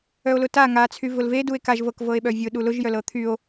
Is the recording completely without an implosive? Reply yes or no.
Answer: no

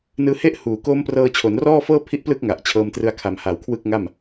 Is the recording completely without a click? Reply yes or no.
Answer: yes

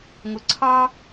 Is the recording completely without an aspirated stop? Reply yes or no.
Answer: no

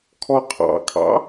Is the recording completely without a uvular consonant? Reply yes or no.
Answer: no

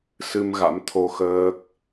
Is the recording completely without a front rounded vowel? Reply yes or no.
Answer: yes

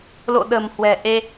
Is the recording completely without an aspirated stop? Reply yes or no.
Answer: yes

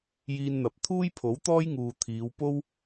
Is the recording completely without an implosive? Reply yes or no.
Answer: yes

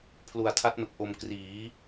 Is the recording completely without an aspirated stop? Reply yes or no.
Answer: no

